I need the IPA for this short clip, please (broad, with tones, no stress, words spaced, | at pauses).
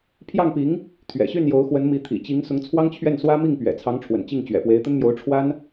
pʰjɑ˥˩ŋpi˧˥ŋ | t̪ʰɥɛ̰˨˩ɕy˥˩njo˧˥ʊ̯xwə˧˥n mi˧˥t̪ʰḭ˨˩t͡ɕi˧˥ŋsʊ˧˥ŋ t͡sʰwɑ˥ŋt͡ɕʰɥɛ˥˩nswä˥ mi˥˩ŋpɥɛ̰˨˩t͡sʰɑ˧˥ŋʈ͡ʂʰwə̰˨˩n t͡ɕi˥˩ŋt͡ɕɥɛ̰˨˩ pwe˧˥ɪ̯t̪ə˥nmjo˧˥ʊ̯ ʈ͡ʂʰwa˥n